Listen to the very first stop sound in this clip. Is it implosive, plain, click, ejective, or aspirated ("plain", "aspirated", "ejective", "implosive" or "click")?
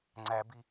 click